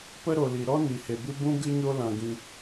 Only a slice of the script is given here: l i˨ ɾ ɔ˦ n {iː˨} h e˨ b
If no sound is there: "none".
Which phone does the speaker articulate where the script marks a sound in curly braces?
i˨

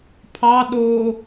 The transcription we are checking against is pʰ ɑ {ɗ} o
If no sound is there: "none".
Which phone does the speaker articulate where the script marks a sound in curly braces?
ɗ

